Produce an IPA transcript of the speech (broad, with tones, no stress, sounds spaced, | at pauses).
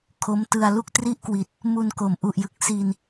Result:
kʰ o˦˥ m t ɯ˧ a̯ l u˥˩ k̚ t r i˥˩ ʔ k w i˨˩ t̚ | m u˧ n k o˩˦ m ʔ u˨˩ ʔ j ɯ˨˩ k̚ s iː˧ n